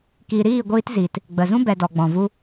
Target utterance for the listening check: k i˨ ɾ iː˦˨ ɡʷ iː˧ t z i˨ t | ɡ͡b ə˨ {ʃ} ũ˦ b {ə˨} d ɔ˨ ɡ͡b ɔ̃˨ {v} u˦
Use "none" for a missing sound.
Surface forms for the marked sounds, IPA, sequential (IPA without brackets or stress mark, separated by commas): z, ɛ˨, v